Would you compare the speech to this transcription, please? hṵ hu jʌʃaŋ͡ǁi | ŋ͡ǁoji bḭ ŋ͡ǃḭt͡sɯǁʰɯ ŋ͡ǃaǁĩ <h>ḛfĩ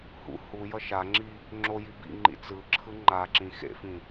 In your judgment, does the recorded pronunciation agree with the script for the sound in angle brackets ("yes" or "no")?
no